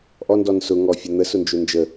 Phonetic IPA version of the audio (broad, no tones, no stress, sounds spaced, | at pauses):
ʔ ɔ n d ɔ n s ʊ ŋ ɔ fʲ ɒ n̪ ə s ʊ n d͡ʒ ʊ n d͡ʒ ə